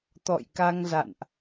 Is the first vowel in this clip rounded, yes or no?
yes